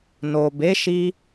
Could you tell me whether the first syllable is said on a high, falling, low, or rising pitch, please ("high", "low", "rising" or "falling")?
low